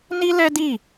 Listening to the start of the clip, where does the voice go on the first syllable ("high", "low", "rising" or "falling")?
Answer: high